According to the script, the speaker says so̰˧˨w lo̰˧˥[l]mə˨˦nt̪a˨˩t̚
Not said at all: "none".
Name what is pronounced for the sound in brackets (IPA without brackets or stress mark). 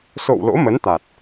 none